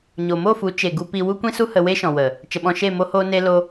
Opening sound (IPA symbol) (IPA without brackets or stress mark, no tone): ɲ